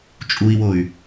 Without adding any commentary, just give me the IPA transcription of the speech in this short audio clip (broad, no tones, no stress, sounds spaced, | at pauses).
t͡ʃʼ u i̯ w o y̯